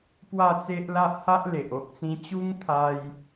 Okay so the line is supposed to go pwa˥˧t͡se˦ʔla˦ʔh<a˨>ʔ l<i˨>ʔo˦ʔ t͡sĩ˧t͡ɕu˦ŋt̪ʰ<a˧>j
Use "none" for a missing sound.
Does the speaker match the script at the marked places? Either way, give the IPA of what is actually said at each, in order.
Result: a˦, e˨, a˧

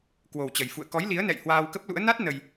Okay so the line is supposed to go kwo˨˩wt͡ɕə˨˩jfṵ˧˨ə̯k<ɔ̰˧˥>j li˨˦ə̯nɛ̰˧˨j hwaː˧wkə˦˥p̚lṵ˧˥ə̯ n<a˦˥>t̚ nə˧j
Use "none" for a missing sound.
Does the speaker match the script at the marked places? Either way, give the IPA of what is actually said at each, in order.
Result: ɔ˨˦, a˦˥

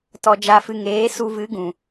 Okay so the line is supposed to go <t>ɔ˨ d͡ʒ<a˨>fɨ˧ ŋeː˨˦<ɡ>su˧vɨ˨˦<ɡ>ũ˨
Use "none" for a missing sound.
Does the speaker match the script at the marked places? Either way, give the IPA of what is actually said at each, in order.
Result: t, a˧, none, ɡ

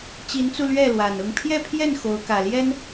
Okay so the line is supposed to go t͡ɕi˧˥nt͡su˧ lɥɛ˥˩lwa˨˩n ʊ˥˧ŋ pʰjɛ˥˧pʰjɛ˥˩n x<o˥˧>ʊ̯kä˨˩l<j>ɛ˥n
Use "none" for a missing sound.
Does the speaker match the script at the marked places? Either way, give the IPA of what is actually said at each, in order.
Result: o˧˥, j

